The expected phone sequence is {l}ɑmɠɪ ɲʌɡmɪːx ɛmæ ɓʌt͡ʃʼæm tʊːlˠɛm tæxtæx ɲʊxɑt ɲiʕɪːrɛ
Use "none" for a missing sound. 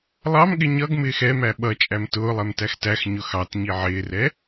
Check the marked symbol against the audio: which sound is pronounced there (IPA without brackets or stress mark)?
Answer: lˠ